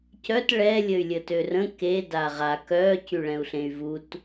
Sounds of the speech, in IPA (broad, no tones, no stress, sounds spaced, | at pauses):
c œ t ɭ ɛ lʲ ə y̯ lʲ ə t ø r ə̃ k e d a ʁ a k œ c y ɭ ɛ̃ u̯ ɬ ẽ y̯ v u t